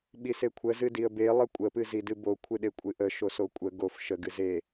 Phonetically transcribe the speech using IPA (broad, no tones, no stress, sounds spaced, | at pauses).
ɓ i s e kʷʰ ə z ɨ d i ə̯ b e lˠ ə kʷʼ ə p ɨ z i d ɨ b o kʷʰ ɨ ɗ e kʷʼ ɨ ʔ ə ʃ o s o kʷʼ ə ɡ o f ʃ ə ɡ ɨ z e